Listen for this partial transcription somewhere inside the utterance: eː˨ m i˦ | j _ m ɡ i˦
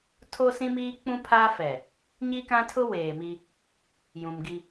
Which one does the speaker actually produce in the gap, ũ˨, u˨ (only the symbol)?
ũ˨